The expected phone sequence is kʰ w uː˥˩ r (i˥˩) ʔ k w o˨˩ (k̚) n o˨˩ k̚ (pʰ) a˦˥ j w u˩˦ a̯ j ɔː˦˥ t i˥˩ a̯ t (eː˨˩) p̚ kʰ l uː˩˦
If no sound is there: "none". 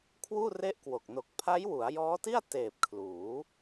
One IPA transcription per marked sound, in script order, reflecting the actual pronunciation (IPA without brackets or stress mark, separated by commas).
e˥˩, k̚, pʰ, eː˨˩